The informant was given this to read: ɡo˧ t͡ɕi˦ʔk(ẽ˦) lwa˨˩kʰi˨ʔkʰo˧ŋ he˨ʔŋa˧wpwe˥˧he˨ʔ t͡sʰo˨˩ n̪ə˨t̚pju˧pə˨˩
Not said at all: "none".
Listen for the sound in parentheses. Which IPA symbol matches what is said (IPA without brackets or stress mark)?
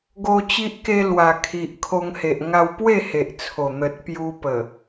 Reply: e˦